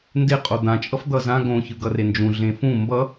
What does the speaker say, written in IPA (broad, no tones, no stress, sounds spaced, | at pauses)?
n d e qʼ o d̪ ã t͡ʃʼ ʌ f d̪ ʌ z ã ɡ õ ç ɯ ɡ ʌ r e n d͡ʒ ũ ɮ ẽ f ũ m b ʌ